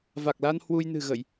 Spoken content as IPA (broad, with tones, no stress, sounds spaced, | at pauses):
v a˨˩ k̚ l a˧ n h w u˧ j n ɨ̤˨˩ ɣ ə˧˩˨ j